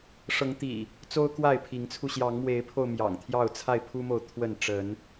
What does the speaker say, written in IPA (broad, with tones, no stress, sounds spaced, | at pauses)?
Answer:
ʂ ɤ˨˦ ŋ t̪ ḭ˨˩ | t͡s o˦ ʊ̯ k w a˥˨ ɪ̯ pʰ i˨˦ ŋ t͡sʰ u˧ ɕ j ɑ˨˦ ŋ m w e˨˦ ɪ̯ pʰ o˧ ʊ̯ m j ɑ̰˨˩ ŋ t̪ʰ j ɑ˥˨ ʊ̯ t͡sʰ a˥˨ ɪ̯ pʰ u˦ m o˨ ʊ̯ t̪ʰ w ə˥˨ n ʈ͡ʂ ə˨˦ n